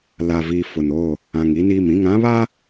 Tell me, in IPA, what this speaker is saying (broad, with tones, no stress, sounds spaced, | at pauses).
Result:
l a˨ v iː˨ f ʊ˨ n oː˦˨ | ã˨ ŋ i˦ n iː˦˨ m ĩ˦˨ ŋ ã˦ β a˦